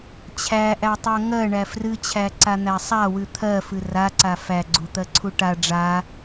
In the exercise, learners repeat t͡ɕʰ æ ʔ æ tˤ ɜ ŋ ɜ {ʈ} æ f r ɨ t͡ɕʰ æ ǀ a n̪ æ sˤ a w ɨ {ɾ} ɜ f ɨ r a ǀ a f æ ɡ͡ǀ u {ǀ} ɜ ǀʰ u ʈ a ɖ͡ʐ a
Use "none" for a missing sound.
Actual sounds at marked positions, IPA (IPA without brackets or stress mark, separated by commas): ɳ, t̪ʰ, t̪